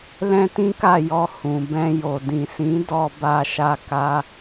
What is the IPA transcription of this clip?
lɛ̃˦tĩ˦ka˦˨jɔ˧ hũ˨ bɛ̃˧jo˨ dĩ˨sĩ˨˦ dɔ˧ba˧ʃa˧ ka˦

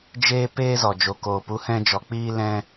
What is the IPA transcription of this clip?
d͡ʒeː˦peː˦ zɔ˨d͡ʒo˨koː˨pu˨˦ hɛ̃˦d͡ʒɔ˧ k͡piː˧ lɛ̃˧

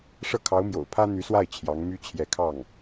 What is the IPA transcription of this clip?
ʂɤ˥˩kʰɑ˧˥ʊ̯mjo̰˨˩ʊ̯ pʰä˥n̪y˧˥swa˥˩ɪ̯ t͡ɕʰjɑ˧˥ŋmy˥ t͡ɕʰjɛ˧˥kʰɑ˥˩ŋ

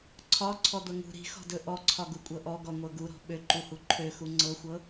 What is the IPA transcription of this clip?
ǀʰɒ ǀʰɔd̪ɤŋṳ ɾi̤xɔ̤dɵ ʔɔǀʰɒɡu kʷʼɤʔɔɡɔ ŋʷɤɡuɾɔ̤ ɓøǃuhu ǃʰøxu ŋ͡ǀɤxʷɤ

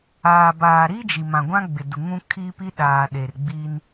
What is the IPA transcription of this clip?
aː˨ baː˨ɾi˦ d͡ʒi˨mã˨ɡʷã˦ɡ͡bɪ˨ du˨ŋũ˦ kʰi˦pi˦ɗaː˨ ɗe˨rɡ͡bi˦n

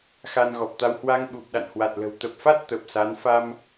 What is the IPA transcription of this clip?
xa˧nɣɔ˨˩p̚t̪a˧w hwa˧ŋɓu˨˩p̚ ɗa̰˧˨nhwa˨˩t̚lə̤˨˩w t̪ə˨˩p̚fa˦˥t̚ t̪ə˨˩p̚sa˨˦n fa˧m

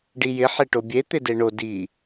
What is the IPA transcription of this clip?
ɖijɪ ħeʈobʲe t̪ɪdeɳo di

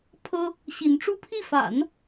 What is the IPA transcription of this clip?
pʰɤ˥ | ɕi˧˥nʈ͡ʂu˥ pʰi˥˩fa̰˨˩˦n

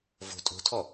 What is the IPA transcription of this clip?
vo̤ tʼo̤tʰɔ

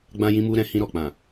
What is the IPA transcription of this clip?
ɡ͡bã˧jĩ˧mu˧ ɾɛ̃˧hĩ˧ɾɔ˨ k͡pã˨

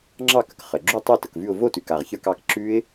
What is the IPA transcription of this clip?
ŋ͡ǁɑ˥˨kə˩k χə˩ ɡ͡ǁu˥˨tˤɛ˥˨ tə˩kvʉ˥˨ʊ̯ vo˥˨tʉ˩k a˩ʁçə˞˥˨kɑ˥˨k ǁʉ˦˥ɪ̯

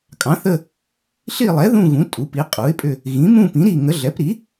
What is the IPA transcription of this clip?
kʼɑ̃˩˥θə˦˨ | ɬi˦˨lˠɛ˩˥ ðũ˦˨ɣũ˩˥ tʼu˩˥pi˩˥qʼu˩˥ɪ̯pʼʏ˦˨ | ɣĩ˩˥mũ˦˨ pĩ˩˥ɾi˦˨ŋə˩˥ ɮɛ˩˥pɾi˩˥

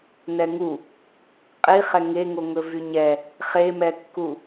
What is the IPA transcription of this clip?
nɛŋu | qʼiχɛ ŋeŋo ŋɵvyɲɛ | χemɛkːu

